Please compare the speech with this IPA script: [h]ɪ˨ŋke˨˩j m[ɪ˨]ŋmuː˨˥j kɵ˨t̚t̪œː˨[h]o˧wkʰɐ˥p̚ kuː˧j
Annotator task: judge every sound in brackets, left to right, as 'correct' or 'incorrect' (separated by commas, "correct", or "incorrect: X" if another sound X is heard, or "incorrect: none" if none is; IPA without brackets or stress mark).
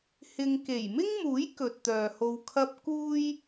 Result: correct, incorrect: ɪ˥, correct